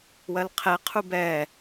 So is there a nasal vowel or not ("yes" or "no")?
no